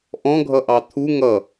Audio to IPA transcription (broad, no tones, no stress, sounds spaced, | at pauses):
ʔ ɔ̃ ɡʱ ʌ ʔ ɑ t̪ʰ u ŋ ʌ